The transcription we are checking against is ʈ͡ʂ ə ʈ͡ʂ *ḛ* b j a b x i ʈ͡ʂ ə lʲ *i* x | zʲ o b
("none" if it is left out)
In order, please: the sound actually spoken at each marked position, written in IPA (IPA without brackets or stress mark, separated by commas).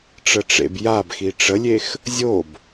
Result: ḛ, e